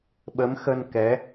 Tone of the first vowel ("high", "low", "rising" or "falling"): rising